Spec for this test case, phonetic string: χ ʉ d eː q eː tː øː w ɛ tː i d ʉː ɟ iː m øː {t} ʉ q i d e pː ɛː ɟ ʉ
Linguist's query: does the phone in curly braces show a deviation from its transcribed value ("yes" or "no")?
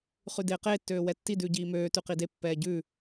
no